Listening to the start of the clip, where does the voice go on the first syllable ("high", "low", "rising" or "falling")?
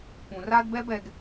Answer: low